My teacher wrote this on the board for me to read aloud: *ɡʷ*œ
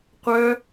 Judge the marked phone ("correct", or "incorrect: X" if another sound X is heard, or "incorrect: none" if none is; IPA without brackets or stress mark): incorrect: qʷ